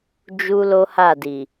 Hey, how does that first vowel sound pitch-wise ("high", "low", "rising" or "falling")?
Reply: high